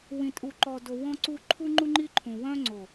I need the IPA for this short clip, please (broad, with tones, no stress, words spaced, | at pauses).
wĩ˨tʼu˨ǃɔ˨do˨ wɔ̃˦ǀu˦ ǃʰu˦ŋ͡ǃu˦ŋ͡ǃi˦ǃʰũ˨ wœ̃˦ŋ͡ǀo˨